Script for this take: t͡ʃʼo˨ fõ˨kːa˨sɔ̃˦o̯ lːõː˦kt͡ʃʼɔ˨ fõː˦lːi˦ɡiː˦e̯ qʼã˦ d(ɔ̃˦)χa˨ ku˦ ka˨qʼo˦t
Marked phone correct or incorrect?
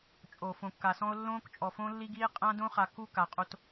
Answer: incorrect